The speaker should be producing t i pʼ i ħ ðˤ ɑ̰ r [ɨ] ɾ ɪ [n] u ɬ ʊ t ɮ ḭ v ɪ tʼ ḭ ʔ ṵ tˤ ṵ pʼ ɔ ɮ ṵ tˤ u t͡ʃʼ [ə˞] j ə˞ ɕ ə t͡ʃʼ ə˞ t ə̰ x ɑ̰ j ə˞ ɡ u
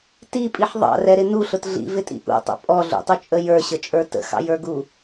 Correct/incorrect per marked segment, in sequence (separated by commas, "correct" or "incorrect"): incorrect, correct, incorrect